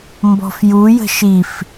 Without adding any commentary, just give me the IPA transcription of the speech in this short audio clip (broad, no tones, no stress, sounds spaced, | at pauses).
m b ɔ̤ f j u j ə̤ ʃ i f